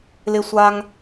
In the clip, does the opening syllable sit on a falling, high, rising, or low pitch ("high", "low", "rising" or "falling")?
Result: low